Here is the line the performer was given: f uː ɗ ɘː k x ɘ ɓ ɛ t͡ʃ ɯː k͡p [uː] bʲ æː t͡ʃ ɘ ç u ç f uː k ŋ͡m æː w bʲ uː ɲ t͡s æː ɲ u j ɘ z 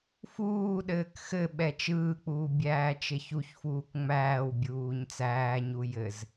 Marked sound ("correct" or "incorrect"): correct